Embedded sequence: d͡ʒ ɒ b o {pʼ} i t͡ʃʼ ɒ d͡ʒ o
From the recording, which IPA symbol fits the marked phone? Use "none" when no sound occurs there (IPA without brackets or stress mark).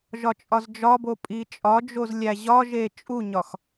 pʼ